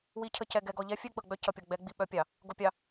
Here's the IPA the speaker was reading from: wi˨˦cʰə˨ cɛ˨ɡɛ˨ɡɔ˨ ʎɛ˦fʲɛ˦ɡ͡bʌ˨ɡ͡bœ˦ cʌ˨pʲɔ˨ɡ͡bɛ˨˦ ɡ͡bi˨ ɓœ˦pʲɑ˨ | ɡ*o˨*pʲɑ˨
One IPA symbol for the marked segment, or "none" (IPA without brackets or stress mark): o˨